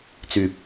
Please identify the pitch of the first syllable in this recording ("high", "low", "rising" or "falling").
rising